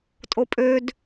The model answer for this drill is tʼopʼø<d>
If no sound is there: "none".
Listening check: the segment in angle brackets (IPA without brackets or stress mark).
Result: d